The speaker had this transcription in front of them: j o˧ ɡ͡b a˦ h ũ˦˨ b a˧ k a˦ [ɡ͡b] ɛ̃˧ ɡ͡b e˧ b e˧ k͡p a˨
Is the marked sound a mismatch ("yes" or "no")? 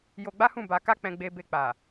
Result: yes